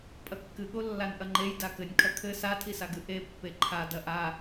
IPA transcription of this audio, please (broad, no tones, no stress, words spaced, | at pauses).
pʼɐkːɨɠo lːanʔɐŋ͡ǃej dakɘnʲ kʰɐkʰɘ satʰisaɡɨ ʔepːe ǃʰadɐ ʔa